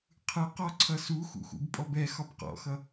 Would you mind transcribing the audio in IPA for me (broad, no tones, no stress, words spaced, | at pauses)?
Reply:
qʰɯqɔǀʰʌ suxṵxṵbpʼɔb ɛ xɒbqɔ̰xʌ